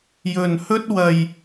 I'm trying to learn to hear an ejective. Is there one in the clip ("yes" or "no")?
no